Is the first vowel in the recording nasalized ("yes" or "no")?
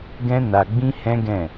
yes